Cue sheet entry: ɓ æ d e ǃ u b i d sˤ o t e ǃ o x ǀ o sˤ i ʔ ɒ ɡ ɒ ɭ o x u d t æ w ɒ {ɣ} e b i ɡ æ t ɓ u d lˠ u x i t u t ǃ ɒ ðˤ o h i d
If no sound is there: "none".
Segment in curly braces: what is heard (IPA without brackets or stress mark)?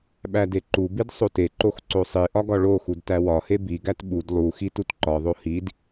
h